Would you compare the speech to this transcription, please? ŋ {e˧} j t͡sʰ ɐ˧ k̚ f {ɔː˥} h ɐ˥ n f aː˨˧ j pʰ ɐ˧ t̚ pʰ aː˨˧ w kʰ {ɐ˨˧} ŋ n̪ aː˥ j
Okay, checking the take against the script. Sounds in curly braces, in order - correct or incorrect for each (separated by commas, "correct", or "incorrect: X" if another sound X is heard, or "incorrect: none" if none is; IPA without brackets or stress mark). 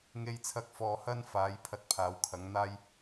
correct, incorrect: ɔː˧, correct